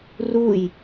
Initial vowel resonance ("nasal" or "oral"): oral